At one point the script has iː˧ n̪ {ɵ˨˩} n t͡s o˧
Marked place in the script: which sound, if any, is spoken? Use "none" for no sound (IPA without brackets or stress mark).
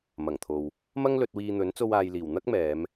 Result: ɵ˨˥